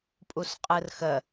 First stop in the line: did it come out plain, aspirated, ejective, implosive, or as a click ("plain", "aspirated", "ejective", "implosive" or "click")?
ejective